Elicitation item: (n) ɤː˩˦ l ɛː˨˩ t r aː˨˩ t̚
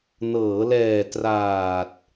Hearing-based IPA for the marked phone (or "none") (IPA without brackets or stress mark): n